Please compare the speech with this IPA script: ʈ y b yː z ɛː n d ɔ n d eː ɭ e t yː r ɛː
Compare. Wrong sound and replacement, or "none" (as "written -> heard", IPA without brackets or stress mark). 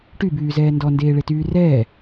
none